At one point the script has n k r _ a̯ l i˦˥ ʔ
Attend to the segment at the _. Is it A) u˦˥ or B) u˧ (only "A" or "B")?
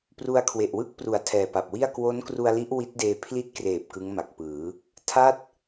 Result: B